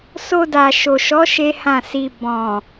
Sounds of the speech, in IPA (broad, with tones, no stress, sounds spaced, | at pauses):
s o˧ d a˨ ʃ o˨ ʃ ɔ˨˦ ʃ e˦ h ã˦˨ s i˧ b ɔ̃˨